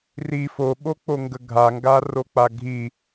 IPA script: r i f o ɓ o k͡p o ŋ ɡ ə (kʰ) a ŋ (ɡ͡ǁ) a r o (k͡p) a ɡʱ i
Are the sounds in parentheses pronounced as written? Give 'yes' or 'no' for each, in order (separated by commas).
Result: no, no, yes